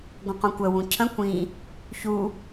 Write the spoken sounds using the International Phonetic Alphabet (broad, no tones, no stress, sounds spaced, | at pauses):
ɡʷ ə̃ q ũ kʷ ə w ũ cʰ ə̃ kʷ ĩ | ç u